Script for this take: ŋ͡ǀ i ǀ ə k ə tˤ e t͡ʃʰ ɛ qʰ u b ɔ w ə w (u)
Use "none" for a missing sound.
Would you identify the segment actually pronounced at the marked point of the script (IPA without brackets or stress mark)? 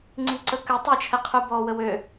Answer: ø